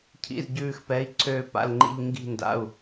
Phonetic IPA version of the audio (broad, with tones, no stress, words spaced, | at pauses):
cʰḭ˧˥˧zɟʉː˥˧xpɛ˧˥˧i̯ ǀʰøː˥˧ pa̰˧˥˧lŋ͡ǃḭ˥˧ʎ ŋɡi̤˥˧nda̰˧˥˧u̯